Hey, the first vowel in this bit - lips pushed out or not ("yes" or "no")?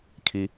no